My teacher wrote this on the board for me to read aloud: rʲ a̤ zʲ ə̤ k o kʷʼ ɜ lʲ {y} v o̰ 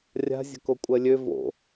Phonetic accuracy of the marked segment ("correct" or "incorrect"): incorrect